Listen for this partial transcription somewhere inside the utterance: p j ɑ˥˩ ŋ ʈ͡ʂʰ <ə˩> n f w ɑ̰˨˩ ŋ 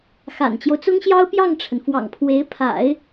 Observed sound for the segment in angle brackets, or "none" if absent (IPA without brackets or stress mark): ə˩